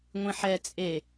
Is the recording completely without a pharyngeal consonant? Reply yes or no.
no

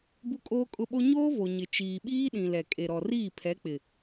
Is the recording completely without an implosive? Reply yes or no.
no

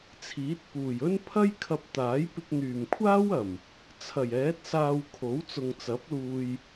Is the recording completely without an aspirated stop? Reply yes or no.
no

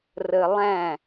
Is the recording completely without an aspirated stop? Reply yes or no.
yes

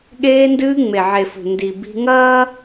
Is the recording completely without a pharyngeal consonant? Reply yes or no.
no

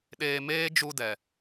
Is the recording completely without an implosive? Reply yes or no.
no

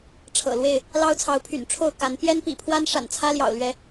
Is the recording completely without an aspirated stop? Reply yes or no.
no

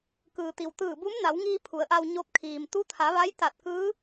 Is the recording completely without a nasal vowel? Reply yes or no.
yes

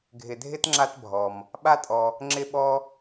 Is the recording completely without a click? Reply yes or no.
no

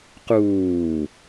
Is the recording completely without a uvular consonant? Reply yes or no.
no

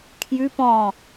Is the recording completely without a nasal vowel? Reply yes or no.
no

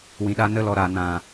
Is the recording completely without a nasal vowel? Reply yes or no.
no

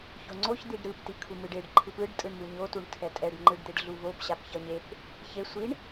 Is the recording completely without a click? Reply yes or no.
no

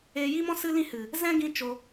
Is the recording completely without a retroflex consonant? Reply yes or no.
yes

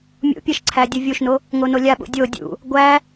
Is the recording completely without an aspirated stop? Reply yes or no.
no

